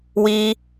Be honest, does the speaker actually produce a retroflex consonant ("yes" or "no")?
no